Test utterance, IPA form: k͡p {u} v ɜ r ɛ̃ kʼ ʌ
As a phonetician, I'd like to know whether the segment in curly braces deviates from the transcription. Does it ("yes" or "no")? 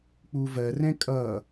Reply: no